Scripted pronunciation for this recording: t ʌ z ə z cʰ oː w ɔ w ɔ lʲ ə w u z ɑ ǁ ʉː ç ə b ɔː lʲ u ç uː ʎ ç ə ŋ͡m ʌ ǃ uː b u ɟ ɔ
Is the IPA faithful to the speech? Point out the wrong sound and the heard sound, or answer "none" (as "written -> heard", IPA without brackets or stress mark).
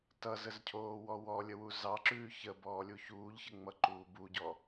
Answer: none